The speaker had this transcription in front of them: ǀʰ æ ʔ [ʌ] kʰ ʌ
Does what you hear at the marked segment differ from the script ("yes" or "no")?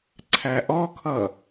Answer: yes